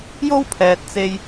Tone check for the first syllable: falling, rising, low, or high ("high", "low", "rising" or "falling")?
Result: high